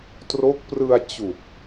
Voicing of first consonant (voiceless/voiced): voiceless